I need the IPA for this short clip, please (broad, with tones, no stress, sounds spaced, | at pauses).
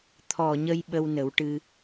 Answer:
t̪ʰ ɔ˨˩ ɲ ə˧ j ɓ ə˧ w n ə˨˩˦ w ʈ ɨ˧